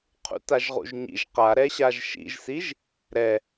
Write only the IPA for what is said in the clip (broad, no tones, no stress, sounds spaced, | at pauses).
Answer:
qʰ ṵ t a ʒ ʁ ṵ ʒ ɲ ḭ ʒ q a ɾ ɛ ɕ a ʒ ʃ ḭ ʒ s i ʒ | ɾ ɛ